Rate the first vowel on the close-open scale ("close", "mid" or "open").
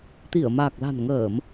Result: close